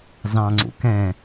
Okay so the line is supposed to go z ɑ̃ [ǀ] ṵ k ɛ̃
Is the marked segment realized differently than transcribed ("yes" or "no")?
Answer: yes